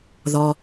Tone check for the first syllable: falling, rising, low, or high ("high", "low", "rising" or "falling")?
low